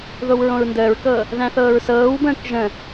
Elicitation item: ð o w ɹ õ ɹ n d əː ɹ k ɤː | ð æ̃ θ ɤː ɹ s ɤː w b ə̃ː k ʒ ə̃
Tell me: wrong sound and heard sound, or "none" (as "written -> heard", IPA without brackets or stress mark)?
none